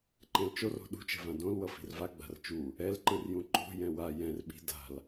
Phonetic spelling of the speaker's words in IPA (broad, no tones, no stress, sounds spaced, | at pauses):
ǃ ɛ̃ l t͡ʃ o r o̤ ɗ ṳ t͡ʃ ɛ̤ v ã d õ l w ʌ f i̤ r v a ɡ͡b a̤ r t͡ʃ u | ɛ l ǃ ɯ r j ũ ǃ o̤ j ɛ̃ w a j ɛ̃ r ɓ i̤ d a̤ l